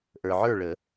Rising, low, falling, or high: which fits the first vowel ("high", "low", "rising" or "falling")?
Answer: low